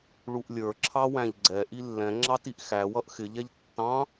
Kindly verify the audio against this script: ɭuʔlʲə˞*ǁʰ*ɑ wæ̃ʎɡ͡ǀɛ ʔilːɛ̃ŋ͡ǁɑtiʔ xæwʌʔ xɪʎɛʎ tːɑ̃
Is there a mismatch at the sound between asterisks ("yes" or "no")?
no